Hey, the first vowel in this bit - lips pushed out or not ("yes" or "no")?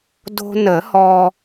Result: yes